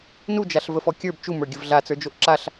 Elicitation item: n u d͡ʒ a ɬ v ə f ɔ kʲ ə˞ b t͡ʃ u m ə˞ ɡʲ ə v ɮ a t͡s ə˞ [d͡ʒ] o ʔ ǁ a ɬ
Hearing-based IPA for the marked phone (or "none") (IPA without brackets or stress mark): d͡ʒ